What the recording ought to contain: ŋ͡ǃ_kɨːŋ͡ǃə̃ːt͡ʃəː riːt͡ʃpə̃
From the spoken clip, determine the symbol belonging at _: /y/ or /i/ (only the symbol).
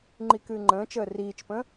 i